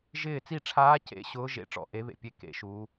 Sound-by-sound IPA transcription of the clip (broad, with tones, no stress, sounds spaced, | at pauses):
ʒ ɪː˦˨ t͡s i˦˨ ʈ͡ʂʰ aː˧˥ c ḛ˧˥ ɕ ʊː˧˥ ʒ ḛ˧˥ ʈ͡ʂ ɔ̰˦˨ ʔ e˧˥ β ḛ˦˨ pʲ e˧˥ k ḛ˧˥ ʃ u˧˥